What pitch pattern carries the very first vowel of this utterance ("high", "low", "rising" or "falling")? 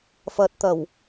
low